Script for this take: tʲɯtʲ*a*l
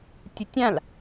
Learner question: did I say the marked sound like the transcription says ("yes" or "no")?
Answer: no